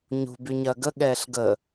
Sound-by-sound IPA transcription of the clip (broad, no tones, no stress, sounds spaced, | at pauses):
ɲ ṳ b y ɲ ɐː ɡ ə ɠ ɛː ɬ ɡ ə